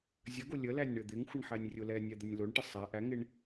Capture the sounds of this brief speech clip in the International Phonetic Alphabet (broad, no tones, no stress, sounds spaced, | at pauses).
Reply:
zʲ ə ɡ o lʲ ə l æ nʲ ɳ ɘ d̪ ɪ ŋ xʷ ɪ ɳ ħ æ nʲ rʲ ʊ l ɛ nʲ ɛ d̪ ə nʲ l o ɳ ʈ ɘ sˤ æ ʔ æ ŋ ɪ ɳ